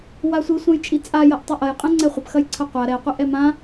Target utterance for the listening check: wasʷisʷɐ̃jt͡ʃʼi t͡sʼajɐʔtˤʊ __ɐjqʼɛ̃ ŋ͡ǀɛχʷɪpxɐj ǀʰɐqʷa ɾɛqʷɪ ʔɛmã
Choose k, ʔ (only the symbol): ʔ